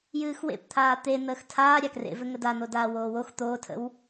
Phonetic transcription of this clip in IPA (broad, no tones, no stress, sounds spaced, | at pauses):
j ɨː x w ḛ p t̪ʰ aː t̪ e n̪ əː x tʰ aː ɾʲ a k r ḛ v ɘ ŋ ə d a n̪ o d aː w oː w o x t̪ oː tʰ ə̰ w